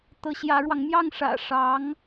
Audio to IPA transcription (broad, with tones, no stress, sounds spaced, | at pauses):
t̪ ɤ˧˥ ɕ j ä˧˥ ɻ w ɑ˧ ŋ m j ɑ˥˩ ŋ ʂ ä̰˨˩ ʂ ɑ˧˥ ŋ